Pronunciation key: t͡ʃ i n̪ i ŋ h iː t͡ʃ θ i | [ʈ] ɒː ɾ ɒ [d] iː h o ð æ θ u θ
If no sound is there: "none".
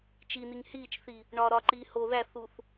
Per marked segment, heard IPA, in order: ɳ, ǃ

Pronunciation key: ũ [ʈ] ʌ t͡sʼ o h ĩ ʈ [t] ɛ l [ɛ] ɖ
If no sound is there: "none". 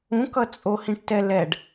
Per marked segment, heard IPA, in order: k, t, ɛ

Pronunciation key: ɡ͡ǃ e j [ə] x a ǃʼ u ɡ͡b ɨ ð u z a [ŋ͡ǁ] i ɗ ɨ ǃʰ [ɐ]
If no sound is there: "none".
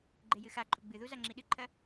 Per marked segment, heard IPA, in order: ɨ, ŋ͡ǁ, ɐ

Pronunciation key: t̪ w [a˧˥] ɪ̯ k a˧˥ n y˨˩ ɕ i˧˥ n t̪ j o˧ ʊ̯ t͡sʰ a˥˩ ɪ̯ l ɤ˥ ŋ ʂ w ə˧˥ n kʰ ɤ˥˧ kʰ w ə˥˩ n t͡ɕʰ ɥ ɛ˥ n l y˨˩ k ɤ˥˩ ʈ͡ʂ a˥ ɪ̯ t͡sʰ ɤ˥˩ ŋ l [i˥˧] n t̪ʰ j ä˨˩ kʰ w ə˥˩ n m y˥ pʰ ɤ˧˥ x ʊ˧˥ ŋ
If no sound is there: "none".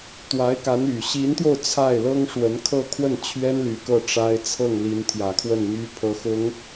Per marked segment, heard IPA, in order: a˧˥, i˧˥

